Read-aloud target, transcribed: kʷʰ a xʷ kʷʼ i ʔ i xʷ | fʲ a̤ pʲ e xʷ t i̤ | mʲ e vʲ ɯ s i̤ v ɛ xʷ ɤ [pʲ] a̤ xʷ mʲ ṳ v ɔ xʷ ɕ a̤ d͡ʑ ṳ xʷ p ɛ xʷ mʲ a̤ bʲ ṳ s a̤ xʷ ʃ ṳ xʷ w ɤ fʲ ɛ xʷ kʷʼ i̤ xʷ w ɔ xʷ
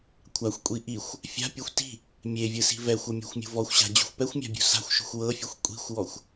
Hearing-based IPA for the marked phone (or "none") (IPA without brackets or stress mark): mʲ